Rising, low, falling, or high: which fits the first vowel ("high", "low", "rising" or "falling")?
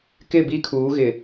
falling